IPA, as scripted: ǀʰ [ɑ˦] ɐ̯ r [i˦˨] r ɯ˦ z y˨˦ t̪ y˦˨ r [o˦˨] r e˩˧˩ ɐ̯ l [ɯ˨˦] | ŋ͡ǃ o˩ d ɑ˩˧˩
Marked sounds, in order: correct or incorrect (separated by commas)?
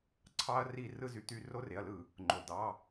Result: correct, correct, correct, incorrect